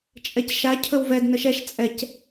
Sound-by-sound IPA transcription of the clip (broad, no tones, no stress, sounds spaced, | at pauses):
t͡ʃʼ ɛ c ʃ a cʰ ɵ w v ɛ d n ə ʃ ɛ ʃ t͡sʼ ɛ c